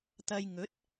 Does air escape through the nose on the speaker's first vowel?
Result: no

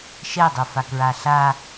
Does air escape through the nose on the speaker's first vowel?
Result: no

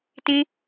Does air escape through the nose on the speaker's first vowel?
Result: yes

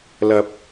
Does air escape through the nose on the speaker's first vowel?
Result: no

